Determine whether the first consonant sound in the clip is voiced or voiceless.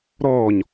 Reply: voiced